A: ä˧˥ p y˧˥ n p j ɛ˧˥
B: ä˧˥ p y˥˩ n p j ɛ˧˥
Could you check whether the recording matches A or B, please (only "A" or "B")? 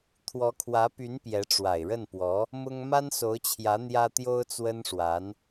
A